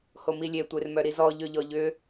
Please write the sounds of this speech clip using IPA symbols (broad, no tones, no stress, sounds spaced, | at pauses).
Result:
h o m i lʲ e tʷ e r m œ ɾ i z ɔ ʎ ø ʎ ɔ ʎ ʏ